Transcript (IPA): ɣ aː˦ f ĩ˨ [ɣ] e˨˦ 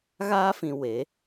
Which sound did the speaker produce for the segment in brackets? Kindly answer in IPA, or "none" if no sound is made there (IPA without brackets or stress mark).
w